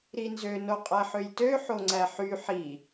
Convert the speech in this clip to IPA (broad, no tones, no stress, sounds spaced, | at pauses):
ɾ i n z ø n o qʼ æ ħ ø j t ø ħ o ŋ͡ǀ æ ħ y ħ i